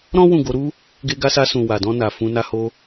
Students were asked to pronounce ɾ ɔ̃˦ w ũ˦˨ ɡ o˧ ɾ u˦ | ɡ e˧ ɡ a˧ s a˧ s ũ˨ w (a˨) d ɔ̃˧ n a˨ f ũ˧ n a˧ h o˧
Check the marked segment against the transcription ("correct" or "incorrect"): correct